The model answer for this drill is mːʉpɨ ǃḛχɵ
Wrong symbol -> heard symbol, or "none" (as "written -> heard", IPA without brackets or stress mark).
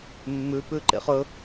ɨ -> ʉ